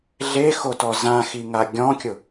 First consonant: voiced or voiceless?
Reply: voiced